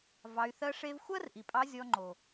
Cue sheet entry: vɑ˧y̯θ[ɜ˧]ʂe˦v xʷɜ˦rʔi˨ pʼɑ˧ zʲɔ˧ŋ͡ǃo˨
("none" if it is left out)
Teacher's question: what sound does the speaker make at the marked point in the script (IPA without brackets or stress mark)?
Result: ɜ˦